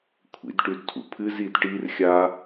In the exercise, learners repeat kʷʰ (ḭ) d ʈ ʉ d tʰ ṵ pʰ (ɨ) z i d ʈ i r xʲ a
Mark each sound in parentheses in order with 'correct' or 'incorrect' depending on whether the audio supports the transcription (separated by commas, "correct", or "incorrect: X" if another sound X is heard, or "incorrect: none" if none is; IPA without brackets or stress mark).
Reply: correct, correct